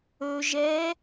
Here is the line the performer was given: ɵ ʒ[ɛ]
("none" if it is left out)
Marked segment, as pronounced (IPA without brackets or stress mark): ɛ